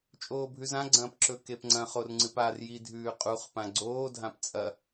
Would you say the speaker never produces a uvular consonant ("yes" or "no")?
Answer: no